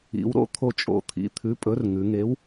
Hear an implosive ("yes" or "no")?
no